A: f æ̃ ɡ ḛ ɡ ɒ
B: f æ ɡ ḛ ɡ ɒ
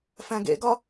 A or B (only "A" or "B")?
A